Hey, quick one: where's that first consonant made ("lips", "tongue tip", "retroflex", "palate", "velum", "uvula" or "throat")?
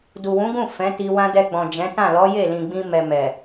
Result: tongue tip